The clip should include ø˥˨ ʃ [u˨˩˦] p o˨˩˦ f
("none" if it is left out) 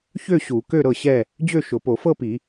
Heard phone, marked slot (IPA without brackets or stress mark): ʊ˨˩˦